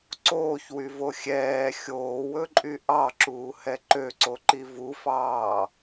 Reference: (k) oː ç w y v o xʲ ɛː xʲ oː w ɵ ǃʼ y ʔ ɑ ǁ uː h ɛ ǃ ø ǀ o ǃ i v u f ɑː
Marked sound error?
yes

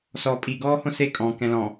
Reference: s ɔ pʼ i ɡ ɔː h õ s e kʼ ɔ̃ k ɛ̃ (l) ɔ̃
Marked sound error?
no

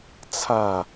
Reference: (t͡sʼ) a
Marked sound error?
yes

